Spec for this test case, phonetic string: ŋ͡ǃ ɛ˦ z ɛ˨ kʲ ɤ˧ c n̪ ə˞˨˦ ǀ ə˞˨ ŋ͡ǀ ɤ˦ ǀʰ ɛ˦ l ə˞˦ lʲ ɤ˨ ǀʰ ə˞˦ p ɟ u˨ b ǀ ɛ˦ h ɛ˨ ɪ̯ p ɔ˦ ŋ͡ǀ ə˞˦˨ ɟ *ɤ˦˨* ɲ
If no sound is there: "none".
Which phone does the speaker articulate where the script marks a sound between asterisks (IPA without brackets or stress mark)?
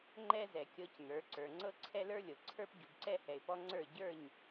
ə˞˦˨